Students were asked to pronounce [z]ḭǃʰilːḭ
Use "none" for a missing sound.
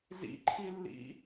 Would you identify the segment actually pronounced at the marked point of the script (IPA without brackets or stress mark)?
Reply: z